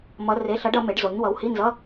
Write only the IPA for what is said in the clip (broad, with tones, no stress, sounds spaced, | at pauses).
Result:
m ʌ˧˥ r e˧˥˧ ɬ ʌ˧˥ ɖ ʌ˩˥ m e˩˥ ɖ z o˩˥ ɲ w ʌ˩˥ w h i˧˥˧ n z ʌ˧˥˧